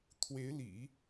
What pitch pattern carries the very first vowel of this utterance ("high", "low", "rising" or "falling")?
rising